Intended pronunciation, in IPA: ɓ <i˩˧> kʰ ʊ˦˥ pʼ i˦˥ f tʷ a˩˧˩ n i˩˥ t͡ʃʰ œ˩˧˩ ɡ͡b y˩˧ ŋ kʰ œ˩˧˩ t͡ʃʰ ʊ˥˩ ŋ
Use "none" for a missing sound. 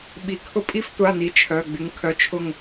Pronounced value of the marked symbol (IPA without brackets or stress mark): i˩˧